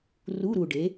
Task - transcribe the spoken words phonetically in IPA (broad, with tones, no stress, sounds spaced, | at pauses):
r u˧˥˧ ɾ u˨˩ ɖ e˩˥